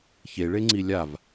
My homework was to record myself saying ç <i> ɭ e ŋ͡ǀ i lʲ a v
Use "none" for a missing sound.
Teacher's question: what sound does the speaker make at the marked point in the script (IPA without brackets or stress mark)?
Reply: e